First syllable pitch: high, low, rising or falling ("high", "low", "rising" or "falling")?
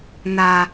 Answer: high